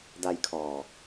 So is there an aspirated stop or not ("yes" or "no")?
yes